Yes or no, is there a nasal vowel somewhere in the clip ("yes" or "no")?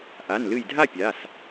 no